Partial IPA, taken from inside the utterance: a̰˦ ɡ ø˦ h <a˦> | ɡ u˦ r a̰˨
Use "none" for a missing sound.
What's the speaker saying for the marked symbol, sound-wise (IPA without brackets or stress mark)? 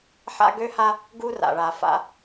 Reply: a˦